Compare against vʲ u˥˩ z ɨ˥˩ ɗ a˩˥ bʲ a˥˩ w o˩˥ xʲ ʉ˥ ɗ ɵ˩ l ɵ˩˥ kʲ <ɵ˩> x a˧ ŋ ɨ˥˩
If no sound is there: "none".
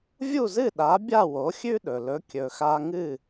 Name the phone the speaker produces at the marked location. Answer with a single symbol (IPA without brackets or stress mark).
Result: ɵ˩